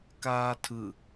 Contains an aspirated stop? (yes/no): yes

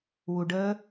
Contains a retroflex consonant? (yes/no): yes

